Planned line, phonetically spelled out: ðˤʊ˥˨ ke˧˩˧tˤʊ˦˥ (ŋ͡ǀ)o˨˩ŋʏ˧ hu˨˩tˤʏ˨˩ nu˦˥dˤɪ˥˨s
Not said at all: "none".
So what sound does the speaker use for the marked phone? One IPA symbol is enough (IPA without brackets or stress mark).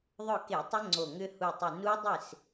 ŋ͡ǀ